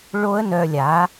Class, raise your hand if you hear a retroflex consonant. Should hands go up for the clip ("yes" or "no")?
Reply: yes